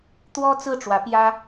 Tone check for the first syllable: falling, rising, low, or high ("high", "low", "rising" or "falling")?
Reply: high